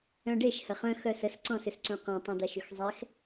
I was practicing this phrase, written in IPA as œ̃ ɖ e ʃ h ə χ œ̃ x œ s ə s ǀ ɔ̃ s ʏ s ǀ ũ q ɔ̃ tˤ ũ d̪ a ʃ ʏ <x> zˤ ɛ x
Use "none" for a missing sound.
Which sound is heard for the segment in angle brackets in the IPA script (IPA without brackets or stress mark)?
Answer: x